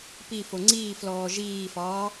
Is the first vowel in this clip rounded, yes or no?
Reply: no